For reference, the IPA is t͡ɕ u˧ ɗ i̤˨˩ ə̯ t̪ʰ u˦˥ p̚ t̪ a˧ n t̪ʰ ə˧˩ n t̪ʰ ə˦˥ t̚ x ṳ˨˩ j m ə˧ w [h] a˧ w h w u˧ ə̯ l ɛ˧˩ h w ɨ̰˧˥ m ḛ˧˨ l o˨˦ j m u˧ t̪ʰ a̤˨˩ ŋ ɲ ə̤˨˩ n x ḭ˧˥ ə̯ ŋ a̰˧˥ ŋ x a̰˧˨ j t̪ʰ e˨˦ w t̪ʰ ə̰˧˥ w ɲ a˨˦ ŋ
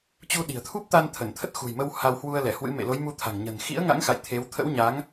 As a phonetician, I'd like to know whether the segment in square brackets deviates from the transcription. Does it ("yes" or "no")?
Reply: no